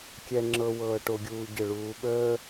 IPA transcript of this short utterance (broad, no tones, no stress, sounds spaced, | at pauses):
kʲ ɛ ŋ͡ǁ ɤ w ɤː ʈ o ɡʲ uː ɟ ə ɭ uː ɓ əː